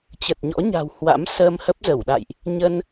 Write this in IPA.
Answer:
t͡ɕ ə˨˩ t̚ ɲ ɔ̰˧˥ ɲ a̤˨˩ w h w a̰˧˥ m s əː˧ m h ə˦˥ p̚ z ə˧˩ w ɗ a̰˧˨ j ʔ | ɲ ə˧ n

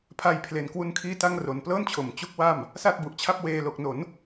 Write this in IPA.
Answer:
pʰ a˧ j pʰ l e˨˩ n k w u˧ n kʰ iː˥˩ t a˥˩ ŋ r o˨˩ n p l ɤː˥˩ n t͡ɕʰ o˩˦ m t͡ɕ u˦˥ k̚ w a˥˩ m | s a˥˩ t̚ b u˨˩ ʔ t͡ɕʰ a˥˩ p̚ w eː˨˩ l o˨˩ k̚ n o˩˦ n

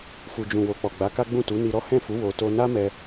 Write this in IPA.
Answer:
f u˨ d͡ʒ ũ˨ w o˨ k͡p ɔ˨ ɡ͡b a˨˦ k a˦ ɡ͡b ũ˦˨ t u˨˦ n i˧ ɾ ɔ˦ h ɛ̃˦˨ f u˨˦ w o˧ t o˦ n a˦ m ɛ˧

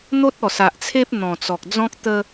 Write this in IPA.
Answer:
n̪ o˦ t̚ ɔ˨˩ s a˨ ʔ t͡sʰ e˦ p̚ n̪ ɔ̃˨˩ t͡s ɔ˨ k̚ d͡z ɔ̃˦ k̚ t̪ ə˦

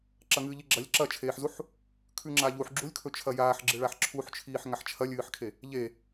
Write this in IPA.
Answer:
ǁ ɐ ŋ ɨː ʎ i ɡ͡ǁ ɐ lʲ ǁ ɐ t͡ʃʰ eː ħ z u ħ | kʰ ʉ ŋ͡ǁ a ʎ u ħ ɡ͡ǁ u lʲ kʰ ɵ t͡ʃʰ ɐ j aː ħ ɡ͡ǁ ɨ ɭ a ħ ǁʰ u ħ t͡ʃʰ iː ħ ŋ a ħ t͡ʃʰ ɐ lʲ ɨː ħ kʰ e | ʎ e

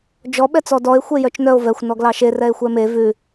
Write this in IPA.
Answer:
d͡ʒ ɔ ɓ ɛ t͡s ɔ d ɔ e̯ xʷ e j œ t͡ʃ n œ o̯ v ɛ xʷ n ɔ ɡ l ɑ ʃ e r ɛ e̯ xʷ ɛ m e v ʉ

